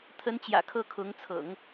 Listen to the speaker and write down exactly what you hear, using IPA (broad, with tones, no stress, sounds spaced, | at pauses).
t̪ʰ ə˧˥ n t͡ɕ j ä̰˨˩ kʰ ɤ˥˩ kʰ ʊ˧˥ ŋ t͡sʰ ɤ̰˨˩˦ ŋ